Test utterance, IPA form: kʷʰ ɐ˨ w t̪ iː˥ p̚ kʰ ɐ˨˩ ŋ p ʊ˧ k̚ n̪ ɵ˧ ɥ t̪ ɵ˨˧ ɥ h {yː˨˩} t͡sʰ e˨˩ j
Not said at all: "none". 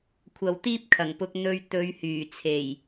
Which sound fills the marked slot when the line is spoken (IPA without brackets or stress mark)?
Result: yː˨˩